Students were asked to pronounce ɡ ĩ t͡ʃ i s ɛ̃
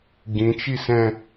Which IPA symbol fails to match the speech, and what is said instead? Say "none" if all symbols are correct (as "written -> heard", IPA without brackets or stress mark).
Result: none